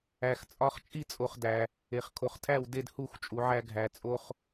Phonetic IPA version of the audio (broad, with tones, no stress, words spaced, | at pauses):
æ˨xt͡sʼɒ˧χ t͡ʃʼi˦t͡sʼo˨χdæ˨ | e˨χkʰo˨χtʰæ˦˨w de˧dhu˦˨x t͡ʃʼu˨ʕæ˧ɡʱæ˨ t͡sʼo˧χ